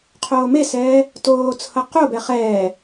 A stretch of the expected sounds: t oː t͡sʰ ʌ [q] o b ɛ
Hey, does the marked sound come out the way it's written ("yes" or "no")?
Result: yes